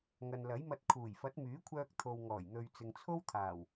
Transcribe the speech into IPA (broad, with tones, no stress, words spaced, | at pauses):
ŋɐ˨nlɐ˨˥jmɐ˧t̚ kʰuː˨˩jfɐ˨˥t̚myː˨˥kʷʰœː˧k̚ t̪ʰo˨wŋɔː˨˩jn̪ɵ˨ɥ t͡sɪ˨ŋt͡sʰo˥wt̪ʰaː˨˩w